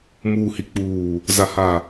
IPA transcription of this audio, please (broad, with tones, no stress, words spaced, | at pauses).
muː˨hi˨k͡puː˨ | za˨ha˨